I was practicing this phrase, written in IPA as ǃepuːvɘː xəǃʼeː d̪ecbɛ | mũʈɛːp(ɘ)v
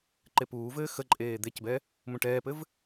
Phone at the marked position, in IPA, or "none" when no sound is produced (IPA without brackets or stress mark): ɘ